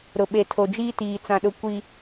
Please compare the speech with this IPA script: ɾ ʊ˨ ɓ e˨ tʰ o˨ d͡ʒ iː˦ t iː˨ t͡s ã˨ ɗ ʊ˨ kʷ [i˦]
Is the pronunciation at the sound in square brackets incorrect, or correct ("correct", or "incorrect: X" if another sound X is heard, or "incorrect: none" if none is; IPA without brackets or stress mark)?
incorrect: i˨